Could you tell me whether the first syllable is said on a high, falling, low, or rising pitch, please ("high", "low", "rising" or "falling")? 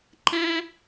high